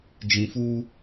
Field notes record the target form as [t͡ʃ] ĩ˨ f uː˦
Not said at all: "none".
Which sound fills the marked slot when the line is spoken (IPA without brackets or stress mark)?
d͡ʒ